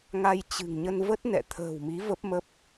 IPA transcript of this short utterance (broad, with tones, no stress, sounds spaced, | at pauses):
ŋ a˧ j t͡ɕ ɨ̤˨˩ ŋ ɲ ə˧ n v ə˦˥ t̚ n ɛ̰˧˨ t̪ʰ ə̤ː˨˩ w m i˨˦ v ə˦˥ p̚ m ə˦˥ p̚